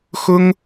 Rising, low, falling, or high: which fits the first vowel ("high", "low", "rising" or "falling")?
high